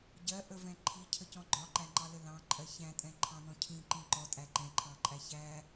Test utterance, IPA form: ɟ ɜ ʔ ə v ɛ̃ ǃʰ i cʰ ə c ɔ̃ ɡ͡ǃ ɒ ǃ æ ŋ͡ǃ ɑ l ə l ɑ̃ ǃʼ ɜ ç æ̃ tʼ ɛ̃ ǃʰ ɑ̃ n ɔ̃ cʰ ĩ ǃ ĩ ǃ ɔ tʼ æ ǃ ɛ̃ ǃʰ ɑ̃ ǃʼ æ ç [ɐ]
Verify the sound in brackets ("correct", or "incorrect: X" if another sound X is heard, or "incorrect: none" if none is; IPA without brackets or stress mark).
incorrect: æ